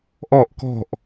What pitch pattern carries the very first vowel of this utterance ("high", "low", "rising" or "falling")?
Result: falling